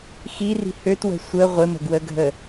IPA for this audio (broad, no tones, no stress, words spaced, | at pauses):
xiri̤ høtwə̤ sʷə ʁʷɪmə̤ɡwəɡʱə